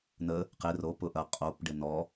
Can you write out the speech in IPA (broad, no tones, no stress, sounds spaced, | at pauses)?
n ə | q e r o p ʊ ʔ ɐ qʼ o p ɖ e n ɔ